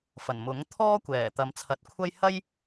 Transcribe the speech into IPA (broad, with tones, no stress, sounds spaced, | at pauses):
f ɐ˨˩ n m ʊ˨˥ ŋ t̪ʰ ɔː˥ kʷ ɛː˨˩ t̪ ɐ˨˧ m t͡sʰ ɐ˨˥ t̚ kʷʰ ɐ˥ j h ɐ˥ j